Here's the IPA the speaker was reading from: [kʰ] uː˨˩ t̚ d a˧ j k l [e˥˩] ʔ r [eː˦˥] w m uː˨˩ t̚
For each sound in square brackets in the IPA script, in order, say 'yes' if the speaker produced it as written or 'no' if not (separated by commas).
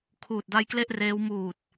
yes, yes, yes